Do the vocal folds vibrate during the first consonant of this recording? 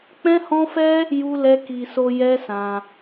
no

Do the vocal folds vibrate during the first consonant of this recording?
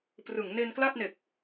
no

